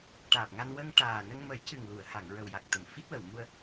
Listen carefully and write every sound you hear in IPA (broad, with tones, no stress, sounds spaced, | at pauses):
ʈ aː˨˩ p̚ ŋ a˧ n w ə˧ ŋ ʈ aː˨˩ n ə˧ ŋ m ə˨˩˦ j c ɨ˨˩ ŋ l u˨˩˨ ə̯ h a˨˩˨ ŋ ɹ ə˨˩ w j a˨˩ k̚ t̪ ə˨˩˨ m f i˦˥ t̚ w ə˨˩˨ w m u˧ ə̯